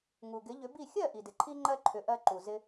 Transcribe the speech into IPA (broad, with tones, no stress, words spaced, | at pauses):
ŋu˩ɡɪ˩˥ʎʏ˩˥bi˥˩ xʲɜ˥˩ʔi˩dɪ˩ǃʰi˧ ŋ͡ǃɜ˥ǃʰʏ˩˥ ʔɜ˧ǃu˩zɪ˧